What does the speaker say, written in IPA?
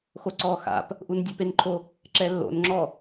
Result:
x o ǀ ɔː x a̰ p | ʔ u n dʲ o p e n ǃʰ o | ǁ ɛ lː o̰ n ŋ͡ǁ ɔ

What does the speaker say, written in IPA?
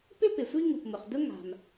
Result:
p ɪ˥ p ɪ˩ sʷ i˥ ŋ u˩ p m ʊ˩ χ d ʊ˥ ŋ a̤˩ m

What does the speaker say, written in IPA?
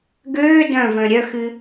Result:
ɡ øː d œ̃ v œ̃ ɾʲ œ x ɨ

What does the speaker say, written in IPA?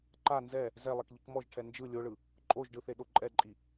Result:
ǃ a n z ɛ | z ɛ lˠ ɛ k ʎ i k m ɔ ʒ ʈʰ ɛ n d͡ʒ ɯ lʲ o ɭ ɯ | ǃʼ o ʒ ɖ ɯ θ e ɗ o ǃʼ ɛ ǃʼ i

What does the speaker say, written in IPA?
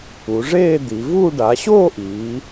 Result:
u˩˧ ʐ eː˥˧ d̪ i˩˧ v uː˥˧ ɖ a˩˧ ɕ oː˥˧ ʔ iː˩˧

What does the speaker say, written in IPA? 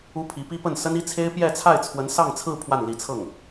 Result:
u˥ pʰ i˧˥ p i˥ p ə˥˩ n s ə˥ n i˥ t͡sʰ e˥ ɪ̯ p j ɛ˥˧ t͡sʰ a˥˩ ɪ̯ t͡sʰ w ə˧˥ n s ɑ˥˧ ŋ t͡sʰ ɹ̩˥˧ pʰ w a˥˩ n l i˧˥ t͡sʰ ɤ˥˩ ŋ

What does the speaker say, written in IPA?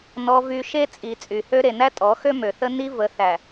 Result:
n ɔ˨ v y˨ ʃ e˦ t͡sʼ i˨ t͡sʼ y˨ h ø˦ ɾ e˨ n æ˦ tʼ ɔ˨˦ x ø˦ m ø˨ θ ə˦ n i˦ v ə˨˦ θ æ˨

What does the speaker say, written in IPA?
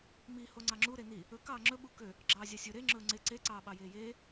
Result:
m i h o ŋ͡ǀ ɑ ŋ͡ǁ u ɾ e n i | ɵ k ɑː ŋ͡ǁ ɵ ɓ u k ø | ɡ͡ǁ ɑː zʲ ɑ sʲ ɵ ɾ e ŋ͡ǁ ɵː ŋ͡ǀ e ǀ e ǀ ɑː ɓ ɑ j eː j eː

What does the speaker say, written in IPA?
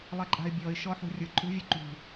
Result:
lˠ ɛ ǃʼ a̤ ɪ̯ bʲ ɔ ɪ̯ ʃ ɔ ħ ṳ rʲ ʊ ǃʼ ṳ vʲ ʊ ǃ ṳ

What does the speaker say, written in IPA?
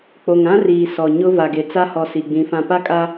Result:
k͡p o˨ ŋ ã˦ r iː˨ s ɔ˨ ɲ ʊ˦ v a˨ ɡ e˨ t͡s a˦ h ɔ˨ s i˨ ɡ͡b ĩ˨˦ f ã˨ p a˦ kʼ a˦

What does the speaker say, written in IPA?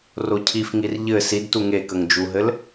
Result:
r o cʰ i f ŋ i r ʎ ɘ s i d t u ŋ e k ə ŋ d͡ʒ u ɦ ɘ l

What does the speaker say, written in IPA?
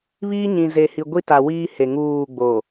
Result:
β iː˦ ɲ ĩ˨ z e˨ h i˨ ɡʷ i˦ t a˨ w iː˦ h e˨ ŋ uː˦˨ ɡ͡b o˨

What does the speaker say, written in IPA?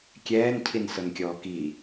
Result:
kʲ ɛː n cʰ i n s ɤ n kʲ ɔː k i

